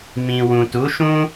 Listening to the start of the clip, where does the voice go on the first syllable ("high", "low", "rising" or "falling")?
low